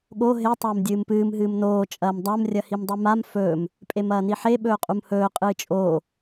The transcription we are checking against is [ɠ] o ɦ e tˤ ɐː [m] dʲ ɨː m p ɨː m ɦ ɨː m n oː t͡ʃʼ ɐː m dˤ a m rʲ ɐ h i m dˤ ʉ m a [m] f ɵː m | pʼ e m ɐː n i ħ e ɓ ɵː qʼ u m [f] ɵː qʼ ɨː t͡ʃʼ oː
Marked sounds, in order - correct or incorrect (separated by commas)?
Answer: correct, correct, correct, incorrect